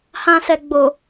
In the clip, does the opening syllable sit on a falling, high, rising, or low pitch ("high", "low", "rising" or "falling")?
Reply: low